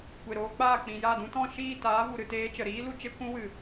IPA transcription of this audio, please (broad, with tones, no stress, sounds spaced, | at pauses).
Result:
kʷ e˨ ɾ oː˧ k͡p aː˦˨ k͡p ĩ˨ j a˦˨ d ũ˧ t ɔ̃˦˨ ʃ iː˦˨ t aː˨˦ v u˨ ɾ ɨ˨ t eː˧ t͡ʃ ə˨ ɾ iː˦ l u˧ t͡ʃ e˦ kʷ ũ˦ w ɨ˨